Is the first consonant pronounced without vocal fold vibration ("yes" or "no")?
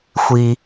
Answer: yes